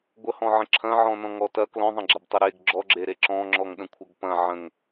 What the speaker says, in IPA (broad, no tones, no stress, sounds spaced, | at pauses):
ɡʷ ə h ɔ̃ ʕ ə̃ ǁʰ ɐ̃ ʕ ɔ̃ n ɔ̃ ŋ ɔ t ɐ k l ɔ̃ ðˤ ɐ̃ ɡ͡ǁ ɐ b tˤ ə ɾ e ɡ ɡ͡ǁ ɔ ɡ͡ǁ e ɾ e ǁ ɔ̃ ŋ͡ǁ ɔ ŋ ɗ ə̃ kʷʰ ɐ ɡ p ɐ̃ ʕ ə̃ ŋ